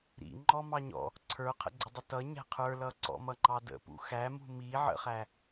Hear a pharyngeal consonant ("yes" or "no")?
yes